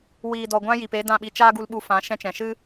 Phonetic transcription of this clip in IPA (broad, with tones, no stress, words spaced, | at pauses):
wiː˨dɔ˨ɡʷã˧ ji˨pe˦dã˦˨ɓi˧ t͡ʃaː˦ɡu˧lɓu˧fã˨˦ ʃɛ̃˧t͡ʃɛ̃˨ʃɨ˦